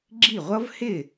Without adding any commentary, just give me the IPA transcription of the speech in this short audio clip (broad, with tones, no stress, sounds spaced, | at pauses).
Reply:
ɡ͡ǁ i˥˩ ʁʷ ʌ˦˥ v h ɪ˥˩